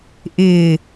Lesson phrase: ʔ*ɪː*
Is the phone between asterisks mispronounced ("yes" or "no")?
no